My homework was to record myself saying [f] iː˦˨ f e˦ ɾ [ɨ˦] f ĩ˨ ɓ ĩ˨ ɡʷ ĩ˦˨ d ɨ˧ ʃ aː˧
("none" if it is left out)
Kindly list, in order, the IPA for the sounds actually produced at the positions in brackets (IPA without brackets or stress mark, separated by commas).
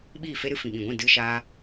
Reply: ɓ, ɨ˦